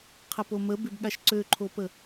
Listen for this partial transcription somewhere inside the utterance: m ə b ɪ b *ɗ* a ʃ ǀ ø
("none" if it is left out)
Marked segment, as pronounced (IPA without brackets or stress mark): ɠ